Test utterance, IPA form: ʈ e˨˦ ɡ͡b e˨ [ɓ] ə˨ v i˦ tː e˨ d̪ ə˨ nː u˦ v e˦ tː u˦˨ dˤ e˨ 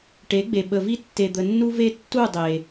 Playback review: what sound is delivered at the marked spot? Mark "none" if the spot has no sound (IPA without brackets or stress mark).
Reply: ɓ